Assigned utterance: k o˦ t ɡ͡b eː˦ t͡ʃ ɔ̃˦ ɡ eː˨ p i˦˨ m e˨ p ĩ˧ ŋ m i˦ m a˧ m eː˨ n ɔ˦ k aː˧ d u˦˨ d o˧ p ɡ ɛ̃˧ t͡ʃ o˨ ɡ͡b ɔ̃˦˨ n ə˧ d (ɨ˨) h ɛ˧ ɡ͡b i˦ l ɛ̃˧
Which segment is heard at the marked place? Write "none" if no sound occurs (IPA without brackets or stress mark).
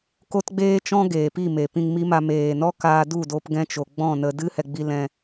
ɨ˦